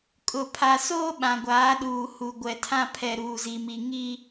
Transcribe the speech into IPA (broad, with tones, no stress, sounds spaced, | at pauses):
kʼ ʊ˨ pʰ a˨ s oː˦ ɓ ã˨ ɡʷ aː˨˦ ɗ uː˨ h u˨ ɡʷ ɛ˨ tʰ ã˦ pʰ ɛ˨ ɾ uː˨ z i˨ m i˨ ŋ i˦